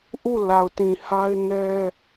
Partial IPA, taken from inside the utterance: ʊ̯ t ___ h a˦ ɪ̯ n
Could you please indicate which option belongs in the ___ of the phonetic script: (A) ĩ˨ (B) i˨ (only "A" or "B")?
A